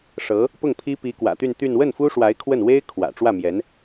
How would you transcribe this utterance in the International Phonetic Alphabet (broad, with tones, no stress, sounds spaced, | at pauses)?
ʂ ɤ˧˥ | p ʊ˥˩ ŋ pʰ i˥ p i˧˥ k w ä̰˨˩ t̪ y˥˧ n t̪ y˥˧ n w ə˥˩ n f u˥ ʂ w a˧˥ ɪ̯ kʰ w ə˥˩ n w e˥ ɪ̯ kʰ w ä̰˨˩ ʈ͡ʂ w ä˥˩ m j ɛ˧˥ n